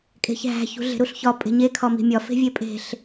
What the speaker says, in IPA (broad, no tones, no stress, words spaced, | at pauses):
kʼe̤çɦæ̤ çṳɮe̤ɾuɬçɒ pʼe̤ɲe kʰɒmi̤mʲɒ fe̤vʲepʼe̤ɬ